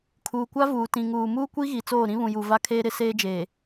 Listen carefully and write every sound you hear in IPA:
kʰuː˨kʷa˦ vuː˨tĩ˨ŋuː˨ muː˦kʷi˦ ɣi˨t͡soː˦˨ ɾĩ˦βũ˨ju˨ va˦kʰeː˦ɾɪ˨˦ seː˦d͡ʒeː˨

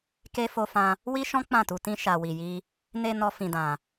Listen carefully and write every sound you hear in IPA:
ke˦ fo˦fã˦ | wi˦ ʃɔ̃˦ k͡pã˦˨tu˧tĩ˦ ʃa˧wi˧ji˦ | ne˧ nɔ˦fĩ˧dã˧

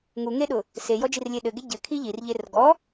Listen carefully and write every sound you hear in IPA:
ŋuŋeɗʊ | sejɔd͡ʒirlʲe ɗɘɡe ɟɘkʰi ʎirʎer ɡɔ

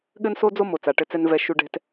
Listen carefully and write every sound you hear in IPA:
ɠɘ˥nso˥ d͡zo˥ mo˩ t͡sa˩ʈɘ˧t͡sɛ˧n vɛ˧ ʃu˧ɖɛ̤˧t

